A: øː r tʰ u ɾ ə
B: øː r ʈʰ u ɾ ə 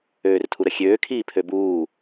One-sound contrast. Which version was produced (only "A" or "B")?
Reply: A